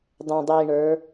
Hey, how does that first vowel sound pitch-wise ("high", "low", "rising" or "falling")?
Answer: low